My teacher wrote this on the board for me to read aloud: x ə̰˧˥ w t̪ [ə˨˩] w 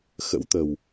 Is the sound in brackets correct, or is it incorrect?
correct